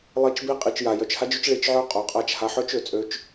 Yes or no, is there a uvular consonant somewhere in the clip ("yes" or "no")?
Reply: yes